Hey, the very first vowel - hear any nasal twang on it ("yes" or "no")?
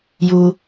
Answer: no